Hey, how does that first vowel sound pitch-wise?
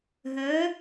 rising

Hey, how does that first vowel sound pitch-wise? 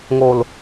low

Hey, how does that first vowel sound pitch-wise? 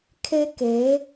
high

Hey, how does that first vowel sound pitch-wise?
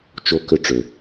rising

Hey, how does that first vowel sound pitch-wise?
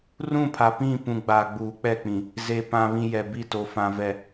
falling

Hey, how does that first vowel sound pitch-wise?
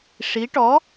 rising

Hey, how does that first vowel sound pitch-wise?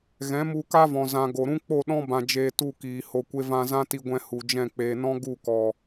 rising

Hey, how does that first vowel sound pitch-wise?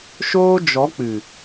high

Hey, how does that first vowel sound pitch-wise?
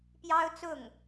high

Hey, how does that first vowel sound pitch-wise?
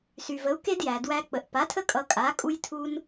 low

